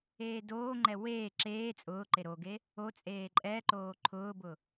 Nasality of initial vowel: oral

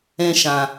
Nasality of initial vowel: nasal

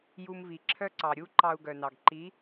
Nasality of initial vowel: oral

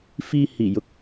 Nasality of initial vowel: oral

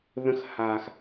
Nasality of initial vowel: nasal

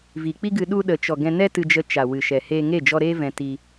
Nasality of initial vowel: oral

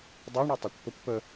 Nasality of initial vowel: oral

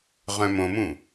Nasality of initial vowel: nasal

